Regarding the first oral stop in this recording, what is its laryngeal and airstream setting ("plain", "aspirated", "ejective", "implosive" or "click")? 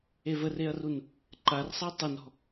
click